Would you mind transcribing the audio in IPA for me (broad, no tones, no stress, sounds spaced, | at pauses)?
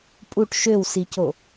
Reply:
pʼ u ʈ ʃ ø w s i c o